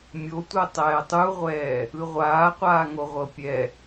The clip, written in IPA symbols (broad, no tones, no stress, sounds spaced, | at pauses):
mʲ o tʷ ɤ tˤ ɛː tˤ u ʁʷ ɛː | ɯ ʁʷ aː qʷ aː ŋ o ʁʷ ɤ pʲ ɛ